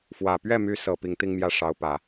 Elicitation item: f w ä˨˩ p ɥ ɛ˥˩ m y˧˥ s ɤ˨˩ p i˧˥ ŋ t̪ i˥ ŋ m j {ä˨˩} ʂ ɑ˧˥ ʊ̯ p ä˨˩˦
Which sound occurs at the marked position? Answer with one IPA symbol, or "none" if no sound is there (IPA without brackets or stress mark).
ä˥˩